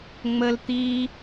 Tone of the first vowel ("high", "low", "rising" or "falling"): high